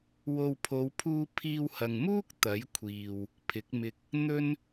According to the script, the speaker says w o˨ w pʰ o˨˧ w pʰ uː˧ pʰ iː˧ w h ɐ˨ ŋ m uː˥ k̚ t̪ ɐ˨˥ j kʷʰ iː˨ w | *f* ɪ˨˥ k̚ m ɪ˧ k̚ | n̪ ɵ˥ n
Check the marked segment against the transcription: incorrect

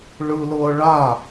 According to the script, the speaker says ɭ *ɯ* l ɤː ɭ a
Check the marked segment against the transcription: correct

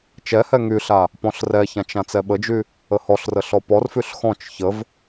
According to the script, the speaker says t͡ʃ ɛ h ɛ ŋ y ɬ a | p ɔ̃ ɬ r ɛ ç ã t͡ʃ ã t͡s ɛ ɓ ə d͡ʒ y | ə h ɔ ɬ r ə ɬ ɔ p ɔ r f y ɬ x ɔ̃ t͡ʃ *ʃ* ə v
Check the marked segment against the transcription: incorrect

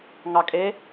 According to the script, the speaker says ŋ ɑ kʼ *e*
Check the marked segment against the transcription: correct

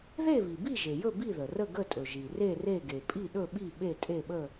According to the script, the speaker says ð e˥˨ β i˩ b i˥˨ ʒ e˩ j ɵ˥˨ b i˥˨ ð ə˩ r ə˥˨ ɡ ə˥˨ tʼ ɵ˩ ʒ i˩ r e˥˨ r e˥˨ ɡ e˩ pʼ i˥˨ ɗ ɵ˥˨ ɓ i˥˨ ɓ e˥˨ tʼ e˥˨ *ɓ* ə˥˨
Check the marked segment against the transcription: correct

